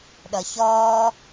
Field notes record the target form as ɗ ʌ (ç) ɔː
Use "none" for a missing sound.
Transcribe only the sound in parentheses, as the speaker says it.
ç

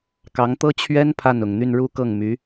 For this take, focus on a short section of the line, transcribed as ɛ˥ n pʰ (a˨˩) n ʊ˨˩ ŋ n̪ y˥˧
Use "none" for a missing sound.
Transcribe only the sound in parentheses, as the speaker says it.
a˥˩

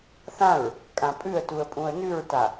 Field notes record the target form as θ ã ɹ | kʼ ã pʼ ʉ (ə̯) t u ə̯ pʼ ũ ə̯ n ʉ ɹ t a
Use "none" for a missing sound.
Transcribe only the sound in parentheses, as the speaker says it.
ə̯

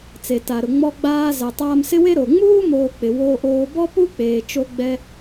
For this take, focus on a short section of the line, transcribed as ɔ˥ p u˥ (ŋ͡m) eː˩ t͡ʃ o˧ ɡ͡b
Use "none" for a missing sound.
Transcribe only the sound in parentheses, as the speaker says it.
k͡p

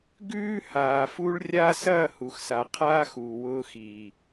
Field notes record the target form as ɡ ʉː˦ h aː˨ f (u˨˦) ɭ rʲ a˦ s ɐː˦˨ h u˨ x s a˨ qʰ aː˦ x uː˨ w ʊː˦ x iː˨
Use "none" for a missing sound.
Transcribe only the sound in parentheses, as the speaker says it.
u˦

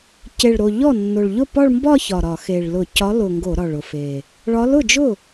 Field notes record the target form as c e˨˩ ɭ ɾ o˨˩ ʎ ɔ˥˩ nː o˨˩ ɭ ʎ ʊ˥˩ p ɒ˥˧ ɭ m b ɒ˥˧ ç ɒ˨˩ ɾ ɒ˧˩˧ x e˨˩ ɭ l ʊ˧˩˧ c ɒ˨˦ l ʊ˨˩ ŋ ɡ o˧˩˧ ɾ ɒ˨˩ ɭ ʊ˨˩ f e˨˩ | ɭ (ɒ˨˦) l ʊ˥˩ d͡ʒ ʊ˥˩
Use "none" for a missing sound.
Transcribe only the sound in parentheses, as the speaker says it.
ɒ˨˦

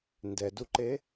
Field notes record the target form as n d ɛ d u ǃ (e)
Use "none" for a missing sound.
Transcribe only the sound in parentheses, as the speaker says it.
e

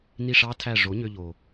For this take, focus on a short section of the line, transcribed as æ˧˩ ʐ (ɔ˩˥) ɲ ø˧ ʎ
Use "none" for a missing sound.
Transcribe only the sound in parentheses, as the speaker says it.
o˩˥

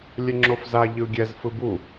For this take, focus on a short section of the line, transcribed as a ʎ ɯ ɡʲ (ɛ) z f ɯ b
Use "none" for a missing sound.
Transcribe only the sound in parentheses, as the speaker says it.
ɛ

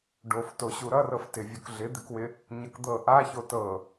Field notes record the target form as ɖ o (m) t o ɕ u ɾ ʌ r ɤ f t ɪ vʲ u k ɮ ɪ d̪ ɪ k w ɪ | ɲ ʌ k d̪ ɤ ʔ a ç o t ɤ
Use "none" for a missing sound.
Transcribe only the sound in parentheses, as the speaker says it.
f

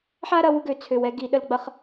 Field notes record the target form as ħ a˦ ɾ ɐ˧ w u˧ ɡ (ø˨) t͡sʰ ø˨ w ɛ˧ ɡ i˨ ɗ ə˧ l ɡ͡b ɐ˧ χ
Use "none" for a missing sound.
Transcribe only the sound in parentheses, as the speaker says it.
ø˨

